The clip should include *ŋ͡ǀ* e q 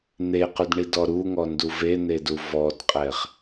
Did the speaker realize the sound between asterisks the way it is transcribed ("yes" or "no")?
no